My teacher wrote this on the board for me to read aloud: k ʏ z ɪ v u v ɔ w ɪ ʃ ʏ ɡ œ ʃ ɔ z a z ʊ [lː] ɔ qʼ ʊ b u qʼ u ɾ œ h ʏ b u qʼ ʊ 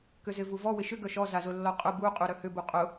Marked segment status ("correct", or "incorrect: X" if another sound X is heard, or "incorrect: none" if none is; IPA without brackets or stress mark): correct